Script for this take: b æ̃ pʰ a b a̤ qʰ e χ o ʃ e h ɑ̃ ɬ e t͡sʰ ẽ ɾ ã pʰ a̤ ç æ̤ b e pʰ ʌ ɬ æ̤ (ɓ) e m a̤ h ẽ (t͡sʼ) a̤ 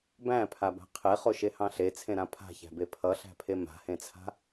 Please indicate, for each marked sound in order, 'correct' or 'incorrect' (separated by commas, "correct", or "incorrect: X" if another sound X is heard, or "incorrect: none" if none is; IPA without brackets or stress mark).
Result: incorrect: pʰ, incorrect: t͡sʰ